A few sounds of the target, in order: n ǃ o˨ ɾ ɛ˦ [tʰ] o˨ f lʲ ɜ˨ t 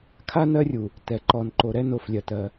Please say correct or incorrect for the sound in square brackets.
incorrect: n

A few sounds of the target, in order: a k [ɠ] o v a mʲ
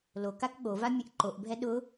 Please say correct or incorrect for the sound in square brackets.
correct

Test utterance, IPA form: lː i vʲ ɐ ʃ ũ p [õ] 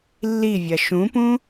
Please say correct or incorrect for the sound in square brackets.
incorrect: ũ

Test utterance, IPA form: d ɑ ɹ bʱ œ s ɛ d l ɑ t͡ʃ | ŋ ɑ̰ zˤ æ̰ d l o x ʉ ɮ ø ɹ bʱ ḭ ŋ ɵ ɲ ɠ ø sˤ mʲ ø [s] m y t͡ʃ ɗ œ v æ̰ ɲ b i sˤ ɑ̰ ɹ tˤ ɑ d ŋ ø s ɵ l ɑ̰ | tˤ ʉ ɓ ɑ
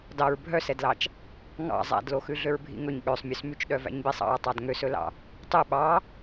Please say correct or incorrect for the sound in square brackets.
correct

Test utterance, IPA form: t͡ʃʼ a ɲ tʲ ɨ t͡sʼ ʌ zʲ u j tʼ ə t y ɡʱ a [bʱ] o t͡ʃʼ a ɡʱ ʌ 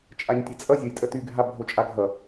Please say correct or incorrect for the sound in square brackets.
correct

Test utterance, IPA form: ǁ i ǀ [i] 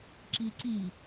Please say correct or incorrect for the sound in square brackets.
correct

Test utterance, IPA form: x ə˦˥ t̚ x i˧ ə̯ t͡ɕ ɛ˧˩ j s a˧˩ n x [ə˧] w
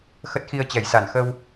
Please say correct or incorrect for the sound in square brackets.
correct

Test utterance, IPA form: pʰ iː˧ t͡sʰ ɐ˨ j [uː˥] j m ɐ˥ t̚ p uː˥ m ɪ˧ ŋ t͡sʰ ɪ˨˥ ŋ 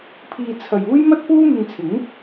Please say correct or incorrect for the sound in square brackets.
correct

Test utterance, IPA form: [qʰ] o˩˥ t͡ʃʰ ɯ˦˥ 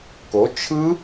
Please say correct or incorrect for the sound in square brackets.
incorrect: k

